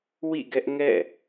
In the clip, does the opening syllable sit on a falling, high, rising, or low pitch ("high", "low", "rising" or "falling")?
falling